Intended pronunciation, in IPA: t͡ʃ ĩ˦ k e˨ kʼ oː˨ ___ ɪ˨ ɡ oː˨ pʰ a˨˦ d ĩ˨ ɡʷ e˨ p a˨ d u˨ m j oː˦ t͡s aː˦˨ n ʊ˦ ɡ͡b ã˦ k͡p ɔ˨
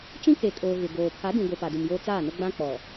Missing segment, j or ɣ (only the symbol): ɣ